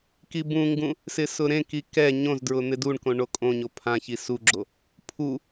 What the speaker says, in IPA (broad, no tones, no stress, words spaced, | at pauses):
kibũŋɡũ | sɪsʊɾẽki kɛ ɲõzdɹʊ n̪ɪduɳkõ ɳokʼõɲo pʰã çisuɡ͡ǁo | pʰu